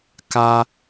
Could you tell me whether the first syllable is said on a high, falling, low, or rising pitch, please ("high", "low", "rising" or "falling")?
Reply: high